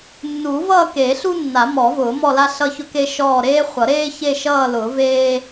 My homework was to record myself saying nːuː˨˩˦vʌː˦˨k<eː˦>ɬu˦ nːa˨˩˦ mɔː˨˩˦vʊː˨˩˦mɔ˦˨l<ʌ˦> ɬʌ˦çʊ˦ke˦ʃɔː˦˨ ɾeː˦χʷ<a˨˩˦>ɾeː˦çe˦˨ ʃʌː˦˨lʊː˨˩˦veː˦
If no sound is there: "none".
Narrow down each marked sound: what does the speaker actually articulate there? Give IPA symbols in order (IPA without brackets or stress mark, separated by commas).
eː˨˩˦, a˦, ʌ˨˩˦